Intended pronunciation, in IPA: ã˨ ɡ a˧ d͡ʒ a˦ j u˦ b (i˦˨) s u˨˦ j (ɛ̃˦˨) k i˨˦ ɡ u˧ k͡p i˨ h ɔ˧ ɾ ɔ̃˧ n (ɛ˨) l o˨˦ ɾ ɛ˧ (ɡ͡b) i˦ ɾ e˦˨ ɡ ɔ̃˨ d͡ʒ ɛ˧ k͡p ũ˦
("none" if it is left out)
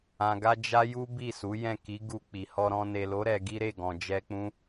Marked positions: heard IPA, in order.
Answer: i˦˨, ɛ̃˦˨, e˨, ɡ

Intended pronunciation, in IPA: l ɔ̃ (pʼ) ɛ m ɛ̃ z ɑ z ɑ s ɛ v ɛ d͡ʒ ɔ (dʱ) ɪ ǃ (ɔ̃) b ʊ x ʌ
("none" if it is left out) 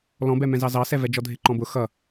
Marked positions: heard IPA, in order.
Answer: b, dʱ, ɔ̃

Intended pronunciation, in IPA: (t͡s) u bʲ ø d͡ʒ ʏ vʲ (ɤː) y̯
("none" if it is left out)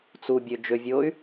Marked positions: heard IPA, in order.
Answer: t͡s, oː

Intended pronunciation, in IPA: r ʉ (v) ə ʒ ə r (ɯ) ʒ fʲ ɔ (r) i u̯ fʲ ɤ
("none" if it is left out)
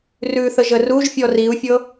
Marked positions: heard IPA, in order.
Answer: θ, u, r

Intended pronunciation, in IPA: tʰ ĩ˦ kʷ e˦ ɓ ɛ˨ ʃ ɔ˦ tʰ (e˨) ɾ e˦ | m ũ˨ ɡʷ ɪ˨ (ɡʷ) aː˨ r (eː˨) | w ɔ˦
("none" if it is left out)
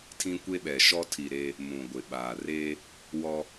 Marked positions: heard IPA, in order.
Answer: i˨, ɓ, eː˦

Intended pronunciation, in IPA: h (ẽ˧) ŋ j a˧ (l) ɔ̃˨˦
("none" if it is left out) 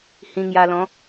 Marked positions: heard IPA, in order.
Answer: ĩ˧, l

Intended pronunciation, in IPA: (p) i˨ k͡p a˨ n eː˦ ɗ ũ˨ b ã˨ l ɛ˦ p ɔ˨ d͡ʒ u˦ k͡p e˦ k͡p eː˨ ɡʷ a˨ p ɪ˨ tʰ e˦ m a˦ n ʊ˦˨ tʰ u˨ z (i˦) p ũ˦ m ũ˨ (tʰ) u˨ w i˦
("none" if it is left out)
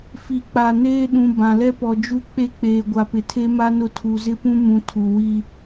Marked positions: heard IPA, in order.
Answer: f, ɪ˦, tʰ

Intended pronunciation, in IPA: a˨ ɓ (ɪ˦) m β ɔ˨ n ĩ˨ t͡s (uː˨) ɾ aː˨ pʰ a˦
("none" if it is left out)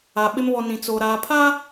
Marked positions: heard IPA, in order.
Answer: ɪ˦, oː˨

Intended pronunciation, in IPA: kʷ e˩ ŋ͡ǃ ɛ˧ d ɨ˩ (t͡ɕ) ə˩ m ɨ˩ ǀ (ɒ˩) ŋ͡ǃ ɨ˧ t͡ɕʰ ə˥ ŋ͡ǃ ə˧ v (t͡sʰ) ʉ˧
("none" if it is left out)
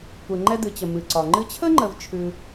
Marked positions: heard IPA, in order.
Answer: t͡ɕ, ɒ˩, t͡ʃʰ

